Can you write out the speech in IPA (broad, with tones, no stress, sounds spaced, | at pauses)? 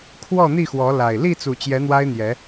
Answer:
kʰ w ɔ˥˨ n̪ i˥˨ x w ɔ˨˦ l a˨˩ ɪ̯ l i˥˨ t͡s u˨˩ t͡ɕ j ɛ˨˦ n̪ w a˦ ɪ̯ n̪ j ɛ˨˦